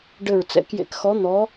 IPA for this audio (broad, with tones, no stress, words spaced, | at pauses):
ɖɘ˧˩ɹt͡sɛ̰˧˥kjḛ˧˥kxɔ˧˥ n̪ɔ˧˥